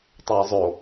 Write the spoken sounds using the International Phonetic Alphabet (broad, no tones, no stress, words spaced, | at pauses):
tˤɛjzˤo